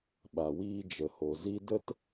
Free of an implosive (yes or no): no